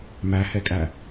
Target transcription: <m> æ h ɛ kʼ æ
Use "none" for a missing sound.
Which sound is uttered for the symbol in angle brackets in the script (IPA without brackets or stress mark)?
m